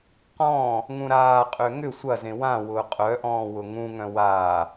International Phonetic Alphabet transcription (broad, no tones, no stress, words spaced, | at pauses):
qɔ̃ː | ŋũɾaːqʼø ŋʏ sʷɐzẽ wã wʊːqʼœʔɔ̃ːwʊ ŋũŋœ̃ waː